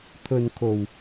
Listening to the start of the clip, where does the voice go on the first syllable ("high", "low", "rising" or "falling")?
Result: low